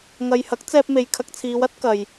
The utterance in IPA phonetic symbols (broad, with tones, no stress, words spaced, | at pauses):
ŋɐ˨jhɐ˨˥k̚t͡sɛː˧p̚me˨j kʰɐ˧k̚t͡sʰiː˨˧wɐ˨˥t̚ kɐ˨j